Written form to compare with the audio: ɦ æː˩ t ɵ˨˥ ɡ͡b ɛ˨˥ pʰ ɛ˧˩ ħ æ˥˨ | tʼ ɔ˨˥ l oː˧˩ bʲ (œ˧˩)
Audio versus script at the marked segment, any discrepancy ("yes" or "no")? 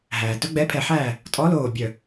no